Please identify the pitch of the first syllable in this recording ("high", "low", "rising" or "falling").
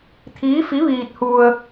rising